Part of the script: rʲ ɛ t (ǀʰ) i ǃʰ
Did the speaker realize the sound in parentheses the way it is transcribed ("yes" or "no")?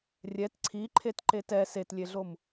yes